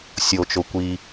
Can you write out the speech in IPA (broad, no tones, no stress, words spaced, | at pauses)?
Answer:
sʲot͡ʃo kʷi